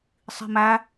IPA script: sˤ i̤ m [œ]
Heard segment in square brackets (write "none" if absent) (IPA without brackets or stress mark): æ